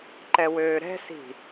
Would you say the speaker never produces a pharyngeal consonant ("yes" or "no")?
yes